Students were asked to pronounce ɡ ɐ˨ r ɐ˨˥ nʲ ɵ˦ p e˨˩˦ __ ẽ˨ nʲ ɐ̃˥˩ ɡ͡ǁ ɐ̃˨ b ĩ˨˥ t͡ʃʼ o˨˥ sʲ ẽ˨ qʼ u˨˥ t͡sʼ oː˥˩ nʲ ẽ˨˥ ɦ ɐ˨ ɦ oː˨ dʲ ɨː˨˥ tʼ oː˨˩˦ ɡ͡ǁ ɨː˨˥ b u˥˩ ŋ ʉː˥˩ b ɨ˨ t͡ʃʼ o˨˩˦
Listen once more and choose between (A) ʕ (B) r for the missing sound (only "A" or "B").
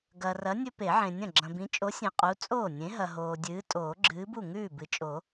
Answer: A